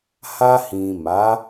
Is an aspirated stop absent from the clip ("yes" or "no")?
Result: yes